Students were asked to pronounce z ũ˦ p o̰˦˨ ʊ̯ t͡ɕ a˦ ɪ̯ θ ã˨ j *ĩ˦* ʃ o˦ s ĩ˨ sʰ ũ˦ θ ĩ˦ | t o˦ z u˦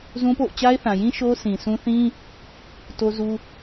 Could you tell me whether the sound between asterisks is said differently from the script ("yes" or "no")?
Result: no